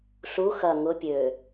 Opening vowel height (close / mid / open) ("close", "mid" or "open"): close